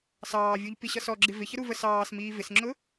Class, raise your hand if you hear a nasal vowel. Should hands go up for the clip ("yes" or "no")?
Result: no